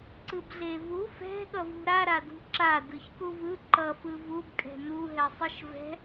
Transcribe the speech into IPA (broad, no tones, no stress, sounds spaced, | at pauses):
ǀ ɯ b ɮ e v u f ɛ̤ ɠ ʌ v ṳ ɾ a ɾ a d ṳ ǁ a d ɯ ç k u v ɯ ǃ ʌ f ɯ v u b kʼ ɛ̤ n u ɦ ɛ sˤ ɯ ʃ v ɛ̤